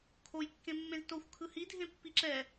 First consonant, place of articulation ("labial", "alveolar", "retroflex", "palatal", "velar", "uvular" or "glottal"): velar